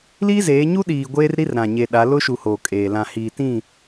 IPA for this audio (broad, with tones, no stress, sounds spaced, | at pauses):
l iː˦ z eː˨˦ ɲ u˦ ɗ iː˨ ɡʷ eː˦ r ɾ i˦ r ɾ ã˨ ɲ e˨ ɗ a˨˦ l ʊ˦ ʃ u˨ h oː˨ kʼ eː˨ l ã˨ h iː˨ t ĩ˦˨